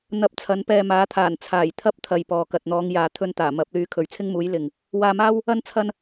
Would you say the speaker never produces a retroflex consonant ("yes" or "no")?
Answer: yes